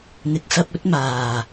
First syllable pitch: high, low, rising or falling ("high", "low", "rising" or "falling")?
low